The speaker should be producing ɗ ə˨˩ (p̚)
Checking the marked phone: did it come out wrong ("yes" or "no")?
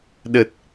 yes